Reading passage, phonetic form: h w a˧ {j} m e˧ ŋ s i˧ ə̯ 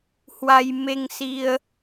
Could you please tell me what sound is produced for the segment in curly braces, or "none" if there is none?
j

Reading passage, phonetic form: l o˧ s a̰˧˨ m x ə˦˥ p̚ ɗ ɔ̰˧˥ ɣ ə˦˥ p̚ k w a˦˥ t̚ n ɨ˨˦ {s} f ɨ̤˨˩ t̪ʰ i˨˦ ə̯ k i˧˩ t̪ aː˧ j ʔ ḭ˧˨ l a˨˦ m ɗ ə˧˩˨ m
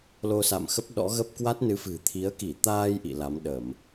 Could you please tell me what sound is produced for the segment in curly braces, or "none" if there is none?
none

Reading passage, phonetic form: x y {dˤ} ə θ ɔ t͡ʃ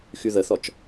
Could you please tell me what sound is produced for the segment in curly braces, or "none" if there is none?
ð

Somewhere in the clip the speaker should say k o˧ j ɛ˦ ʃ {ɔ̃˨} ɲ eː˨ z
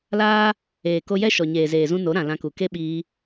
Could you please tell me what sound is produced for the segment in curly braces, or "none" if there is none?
ɔ˨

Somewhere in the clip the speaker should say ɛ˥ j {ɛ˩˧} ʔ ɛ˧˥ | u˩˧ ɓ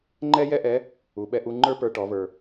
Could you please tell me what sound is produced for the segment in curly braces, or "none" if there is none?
ɛ˥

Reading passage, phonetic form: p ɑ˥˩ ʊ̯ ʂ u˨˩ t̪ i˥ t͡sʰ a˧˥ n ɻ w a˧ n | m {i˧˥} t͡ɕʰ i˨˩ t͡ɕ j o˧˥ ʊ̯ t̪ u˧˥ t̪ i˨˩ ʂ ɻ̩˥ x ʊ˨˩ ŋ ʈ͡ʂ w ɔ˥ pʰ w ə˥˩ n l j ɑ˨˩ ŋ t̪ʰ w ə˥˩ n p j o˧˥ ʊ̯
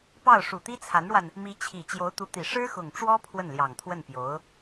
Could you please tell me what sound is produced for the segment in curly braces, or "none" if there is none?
i˧˥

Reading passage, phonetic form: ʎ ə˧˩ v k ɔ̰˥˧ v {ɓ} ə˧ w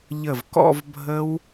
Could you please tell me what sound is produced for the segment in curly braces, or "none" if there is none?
bʱ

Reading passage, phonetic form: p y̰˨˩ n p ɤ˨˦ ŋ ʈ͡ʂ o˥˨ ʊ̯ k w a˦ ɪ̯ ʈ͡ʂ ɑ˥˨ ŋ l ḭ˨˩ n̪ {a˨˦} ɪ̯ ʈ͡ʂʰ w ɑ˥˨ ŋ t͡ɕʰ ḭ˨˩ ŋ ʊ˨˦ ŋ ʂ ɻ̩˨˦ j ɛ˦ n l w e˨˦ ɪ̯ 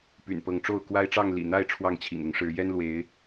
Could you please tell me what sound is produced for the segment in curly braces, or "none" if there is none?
a˥˨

